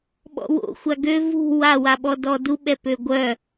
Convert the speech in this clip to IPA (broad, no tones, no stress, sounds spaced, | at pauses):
ɓ ɔ̰ w o̰ xʷ a ɡ ø v ṳ w a w a ɓ ɔ d ɔ d u ɓ ɛ p ø ɡʷ œ